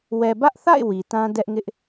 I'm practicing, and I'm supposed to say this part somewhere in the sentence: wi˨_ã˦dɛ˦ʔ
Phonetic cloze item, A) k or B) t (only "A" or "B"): B